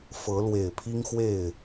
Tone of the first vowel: rising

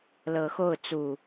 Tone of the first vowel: rising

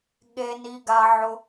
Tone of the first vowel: high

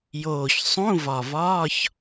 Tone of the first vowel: low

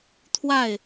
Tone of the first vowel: falling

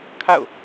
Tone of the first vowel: falling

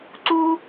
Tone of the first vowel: high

